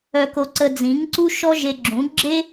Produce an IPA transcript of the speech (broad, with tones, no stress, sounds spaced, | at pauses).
œ˧ k o˧ ǀ ə˧ d͡z ĩ˨˦ ŋ ǀ u˦ ʃ ɔ˦ ʒ e˧ ɡ͡ǁ ũ˨˦ ɡ͡ǁ e˦